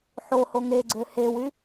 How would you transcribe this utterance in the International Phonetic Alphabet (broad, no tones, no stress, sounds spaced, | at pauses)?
ħ o h o ŋ e ɡ͡ǀ ø h e w y